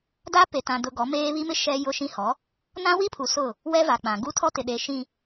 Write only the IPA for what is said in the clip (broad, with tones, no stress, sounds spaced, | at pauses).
d a˦ p e˨ t ã˨ d ʊ˨ ɡ ɔ˨˦ m eː˦ β i˦ m ɪ˦ ʃ ɛ˦ j ʊ˦ ʃ ĩ˦ h ɔ˨˦ | n ã˦ w i˦ pʰ u˨ s ʊ˦˨ | w ɛ˦ v a˨ k͡p ã˨ ɡ u˦ tʰ ɔ˦ t ɪ˨ ɗ e˨ ʃ ĩ˨